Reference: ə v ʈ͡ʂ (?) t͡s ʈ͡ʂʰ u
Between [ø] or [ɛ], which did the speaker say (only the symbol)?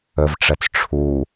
ɛ